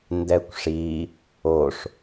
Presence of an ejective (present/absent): absent